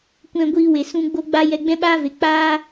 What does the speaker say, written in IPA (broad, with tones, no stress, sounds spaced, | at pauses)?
kʷ ɛ̃˧ ɡʷ iː˧ w e˨ s ũ˧ ɡ͡b o˦ ɡ͡b a˦ j ɛ˧ ɡ͡b ɛ̃˦ ɓ aː˦ v e˨ k͡p aː˦